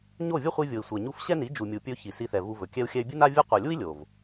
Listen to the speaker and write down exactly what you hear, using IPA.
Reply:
ɲ o˦˨ vʲ ə˦ χʷ i˧ vʲ o˨ i̯ sʷ ɛ˨ ɲ u˦ f ɕ ɛ˦ n i˨˦ d͡ʒ u˨ mʲ u˨ pʲ ɵ˧ ç i˨ s i˧ θ ɛ˨ v u˧ v ɵ˨ kʲ ɛ˧ u̯ xʲ ɛ˧ y̯ bʲ ɨ˦ n a˦ vʲ ɨ˦ qʷ ɛ˨ lʲ u˦ i̯ lʲ o˨ v

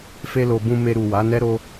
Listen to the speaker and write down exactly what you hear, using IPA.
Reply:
f e˧ l o˨ b ũ˧ m e˧ ɾ u˨ w a˨˦ n ɛ˦ ɾ o˧

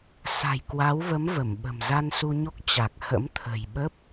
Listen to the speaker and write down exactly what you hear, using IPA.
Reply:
s a̤˨˩ j k w a˨˦ w v ə˨˦ m v ə˧˩ m ɓ ə̤˨˩ m z a˧ n s u˧ ɲ o˦˥ k̚ t͡ɕ a˨˩ k̚ h ə̰˧˥ m t̪ʰ ə̤˨˩ j ɓ ə˦˥ p̚

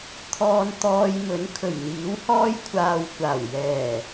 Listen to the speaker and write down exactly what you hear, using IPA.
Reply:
t̪ʰ ɔː˧ n t̪ ɔː˧ j m ɵ˨˥ n kʰ ɵ˨˩ ɥ n̪ iː˨˥ w h ɔː˥ j kʷʰ aː˧ w kʷ aː˨˩ w j ɛː˨˩

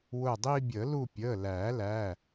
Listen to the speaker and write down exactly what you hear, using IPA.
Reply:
w ʊː˦˨ dˤ iː˦ bʲ əː˨˩˦ l u˦˨ pʲ əː˩˧˩ l æː˨˩˦ l æ˩˧˩

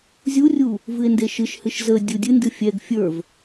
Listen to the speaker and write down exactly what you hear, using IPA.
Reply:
zʲ u rʲ u | v ɨ e̯ n d e ʃ ɨ ʃ h ɨ ʃ z ə dʲ u dʲ ɨ n d ɨ fʲ ɛ ɡ fʲ ə˞ v

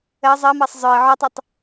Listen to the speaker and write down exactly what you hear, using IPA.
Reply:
ɜ zˤ ɜ m ɜ sˤ zˤ œ ɪ̯ ʕ o tˤ ɵ tˤ

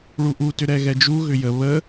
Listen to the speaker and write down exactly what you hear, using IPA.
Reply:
ɭ u ʔ u t ʏ ɾ ɛ ɣ ɛ d͡ʒ u ɣ ʏ j ə β ə

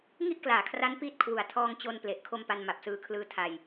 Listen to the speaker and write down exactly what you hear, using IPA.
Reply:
ŋ i˥˩ ʔ k l aː˩˦ kʰ r a˦˥ n p iː˦˥ t̚ kʰ w u˨˩ a̯ tʰ ɔː˧ ŋ t͡ɕ o˧ n p l e˨˩ ʔ kʰ o˧ m p a˧ n m a˨˩ p̚ s ɯː˧ kʰ l ɯː˦˥ tʰ a˧ j

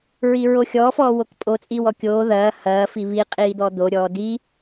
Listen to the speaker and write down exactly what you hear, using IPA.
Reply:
ɹ i ɹ o xʲ ɔː f ɔː w o k pʼ o t͡sʼ iː w ɔ kʲ oː ð ɐː h ɐː f i β i qʼ iː d̪ ɔ d̪ o ɾʲ ɔː d i

